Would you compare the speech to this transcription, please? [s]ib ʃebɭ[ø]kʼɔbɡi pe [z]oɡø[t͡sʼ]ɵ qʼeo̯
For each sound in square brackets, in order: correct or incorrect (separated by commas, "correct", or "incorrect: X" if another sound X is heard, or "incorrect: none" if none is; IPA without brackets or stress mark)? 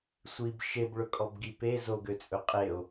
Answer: incorrect: sʷ, incorrect: ɵ, correct, correct